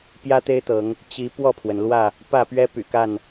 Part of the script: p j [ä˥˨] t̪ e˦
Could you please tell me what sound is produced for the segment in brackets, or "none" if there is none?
ä˦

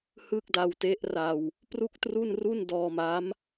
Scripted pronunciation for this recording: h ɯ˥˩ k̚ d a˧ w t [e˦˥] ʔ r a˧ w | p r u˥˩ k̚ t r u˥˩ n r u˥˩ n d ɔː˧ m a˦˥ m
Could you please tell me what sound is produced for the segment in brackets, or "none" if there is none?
e˦˥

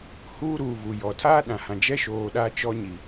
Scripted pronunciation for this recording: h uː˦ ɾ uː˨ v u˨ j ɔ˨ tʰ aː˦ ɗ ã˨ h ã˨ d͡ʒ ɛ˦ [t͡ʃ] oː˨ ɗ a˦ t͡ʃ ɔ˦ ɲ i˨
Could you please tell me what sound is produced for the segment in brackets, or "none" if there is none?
ʃ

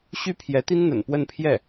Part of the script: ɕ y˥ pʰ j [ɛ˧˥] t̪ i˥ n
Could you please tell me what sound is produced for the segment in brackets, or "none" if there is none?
ɛ˧˥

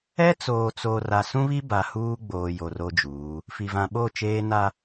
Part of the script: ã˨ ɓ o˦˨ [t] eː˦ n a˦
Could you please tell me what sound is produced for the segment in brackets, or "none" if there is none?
t͡ʃ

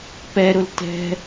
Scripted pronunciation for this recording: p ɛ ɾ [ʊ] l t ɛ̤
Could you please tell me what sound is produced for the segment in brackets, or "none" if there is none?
ʊ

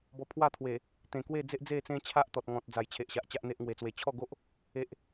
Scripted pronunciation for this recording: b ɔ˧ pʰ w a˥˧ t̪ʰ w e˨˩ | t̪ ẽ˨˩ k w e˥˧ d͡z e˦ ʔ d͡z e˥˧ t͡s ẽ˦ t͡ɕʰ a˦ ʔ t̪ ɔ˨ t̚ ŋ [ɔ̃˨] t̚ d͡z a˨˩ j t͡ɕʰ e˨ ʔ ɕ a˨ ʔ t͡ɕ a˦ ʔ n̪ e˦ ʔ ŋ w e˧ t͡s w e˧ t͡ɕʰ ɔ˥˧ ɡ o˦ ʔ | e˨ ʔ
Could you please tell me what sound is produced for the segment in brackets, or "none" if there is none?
ɔ̃˨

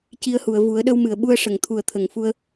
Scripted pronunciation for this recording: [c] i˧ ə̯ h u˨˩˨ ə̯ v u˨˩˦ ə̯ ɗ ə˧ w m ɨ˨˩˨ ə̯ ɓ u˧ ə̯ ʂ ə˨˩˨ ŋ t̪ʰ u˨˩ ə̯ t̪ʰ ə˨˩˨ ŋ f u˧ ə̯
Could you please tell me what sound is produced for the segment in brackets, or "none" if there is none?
c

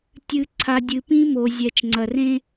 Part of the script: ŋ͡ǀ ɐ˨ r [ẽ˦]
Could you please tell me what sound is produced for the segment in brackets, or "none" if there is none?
ẽ˦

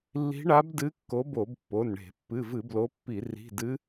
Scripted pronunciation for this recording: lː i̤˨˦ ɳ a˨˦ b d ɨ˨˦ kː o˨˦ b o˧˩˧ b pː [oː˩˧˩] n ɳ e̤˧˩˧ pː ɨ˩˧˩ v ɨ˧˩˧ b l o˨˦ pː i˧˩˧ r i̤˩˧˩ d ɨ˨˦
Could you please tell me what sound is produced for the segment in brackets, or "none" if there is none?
o˩˧˩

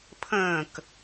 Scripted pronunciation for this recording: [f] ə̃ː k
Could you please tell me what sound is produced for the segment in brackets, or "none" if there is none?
pʰ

